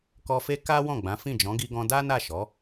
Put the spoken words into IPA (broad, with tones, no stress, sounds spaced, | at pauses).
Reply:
k ɔ˧ f e˦ k a˦ w ɔ̃˦˨ ɡ͡b ã˨˦ f ĩ˦˨ d͡ʒ ɔ̃˨˦ ɡ i˧ ɡ ɔ̃˧ d a˦ n a˦˨ ʃ ɔ˨˦